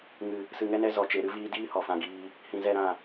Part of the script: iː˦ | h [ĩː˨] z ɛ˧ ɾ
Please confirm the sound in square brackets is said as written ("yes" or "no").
no